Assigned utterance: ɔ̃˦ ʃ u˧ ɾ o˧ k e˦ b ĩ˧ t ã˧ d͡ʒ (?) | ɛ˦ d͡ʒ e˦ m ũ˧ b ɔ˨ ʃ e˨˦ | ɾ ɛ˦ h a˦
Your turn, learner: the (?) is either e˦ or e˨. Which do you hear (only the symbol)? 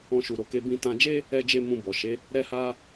e˦